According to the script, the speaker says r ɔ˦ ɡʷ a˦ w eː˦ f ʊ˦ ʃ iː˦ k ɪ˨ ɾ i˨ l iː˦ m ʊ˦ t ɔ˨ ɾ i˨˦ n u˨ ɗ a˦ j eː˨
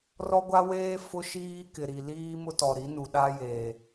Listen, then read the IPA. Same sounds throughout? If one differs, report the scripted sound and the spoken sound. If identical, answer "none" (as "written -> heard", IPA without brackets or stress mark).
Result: none